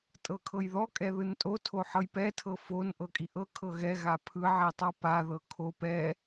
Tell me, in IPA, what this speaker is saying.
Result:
tʼ ɤ kʰ ɤ j ð ɔ kʼ ɛ ð ɯ n tʼ o tʰ o ħ ɤ j p ɛ tʰ ɤ f o n ʔ ɤ kʼ i ʔ ɤ kʰ ɤ ɣ ɛ ɣ a pʰ ɯ ʕ i tˤ a p a ð ɤ kʰ o p ɛ

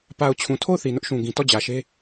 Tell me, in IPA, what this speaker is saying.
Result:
p a˨ ʊ̯ t͡ɕʰ ũ˨ tʰ o˦˨ ʊ̯ θ i˨ n ʊ˦ ʔ ʃ ũ˨ ɡ ĩ˨ t ɔ˦˨ d͡ʑ ä˨ ʃ e˦

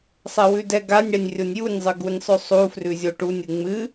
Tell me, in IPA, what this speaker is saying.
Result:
sˤ ɛ w ʉ d ɛ ɡ a nʲ ɽ ɛ nʲ rʲ o nʲ j u nʲ zˤ ɨ ɡ u nʲ sˤ ʉ sˤ u f r ʉ zʲ o ʈ u nʲ ɨ ŋ͡m ɨ

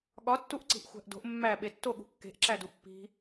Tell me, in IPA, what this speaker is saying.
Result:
ɠ ɒ tː u ʔ ǀ i̤ ʔ xʷ æ̤ ʔ d o̤ ʔ mː æ ɓ e tː o ɠ ṳ kː e̤ ʔ ǁ æ d u pː i̤

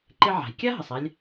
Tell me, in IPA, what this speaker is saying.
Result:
ǃ ɪ˧ ʕ a̤˩ j kʲ a˥ ɦ ə˩ sˤ a˧ lʲ

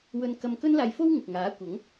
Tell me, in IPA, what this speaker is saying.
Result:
w ɵ˧ n k ɐ˧ m k ɵ˥ n l aː˧ j f o˥ w ŋ ɪ˨ k̚ ŋ aː˨˥ kʷ ɐ˨˥ ŋ

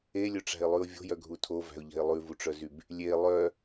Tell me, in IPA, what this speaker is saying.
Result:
e lʲ ɵ ʈ͡ʂ æ̤ ɪ̯ lˠ ʉ ʊ̯ vʲ o̤ j œ ɡʱ u tʰ o v æ̤ ʊ̯ ʎ ɛ̤ ɪ̯ lˠ ʉ v u ʈ͡ʂ œ z y b | lʲ e lˠ œ

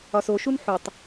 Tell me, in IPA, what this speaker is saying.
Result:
ɒ s o ʃ u n ħ u tˤ

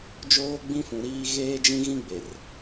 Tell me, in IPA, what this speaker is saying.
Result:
d͡ʒ oː˦ ɡ͡b ĩ˦ f ũ˨ ɾ iː˦ ɣ eː˦ d͡ʒ ĩ˦ ɣ ĩ˦ ɡ͡b e˨ r

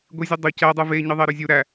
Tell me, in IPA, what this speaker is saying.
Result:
ɡʷ i zʲ ø dˤ o c æ dˤ ɯ v e ɲ ɯ ðˤ e ɾ ø zʲ u ɾ æ

